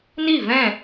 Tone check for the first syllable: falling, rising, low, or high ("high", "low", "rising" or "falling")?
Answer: falling